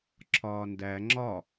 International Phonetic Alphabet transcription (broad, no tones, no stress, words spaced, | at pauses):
ǁʰɒːndæ ŋ͡ǁɒ